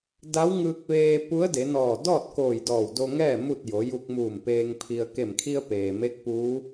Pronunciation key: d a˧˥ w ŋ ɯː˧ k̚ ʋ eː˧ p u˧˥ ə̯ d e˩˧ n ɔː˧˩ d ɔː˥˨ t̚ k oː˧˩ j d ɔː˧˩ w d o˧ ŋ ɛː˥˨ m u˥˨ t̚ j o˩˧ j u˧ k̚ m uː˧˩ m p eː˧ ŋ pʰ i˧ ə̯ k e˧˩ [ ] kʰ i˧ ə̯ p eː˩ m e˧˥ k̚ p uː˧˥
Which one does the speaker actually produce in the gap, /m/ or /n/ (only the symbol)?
m